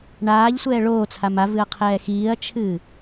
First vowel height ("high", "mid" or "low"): low